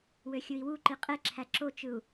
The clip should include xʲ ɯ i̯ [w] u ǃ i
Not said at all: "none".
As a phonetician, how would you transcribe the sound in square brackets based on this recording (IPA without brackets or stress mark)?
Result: w